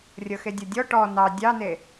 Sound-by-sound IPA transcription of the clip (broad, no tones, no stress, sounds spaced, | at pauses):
rʲ ɤ x e dʲ o dʲ ɔ ʈ ɔ n ɑ dʲ ɑ n e